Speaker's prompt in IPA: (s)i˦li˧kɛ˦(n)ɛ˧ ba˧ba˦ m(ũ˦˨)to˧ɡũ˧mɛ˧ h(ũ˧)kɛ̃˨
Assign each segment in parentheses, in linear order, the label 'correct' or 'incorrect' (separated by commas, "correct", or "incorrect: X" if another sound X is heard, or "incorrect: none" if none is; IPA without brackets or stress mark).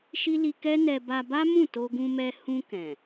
incorrect: ʃ, correct, correct, correct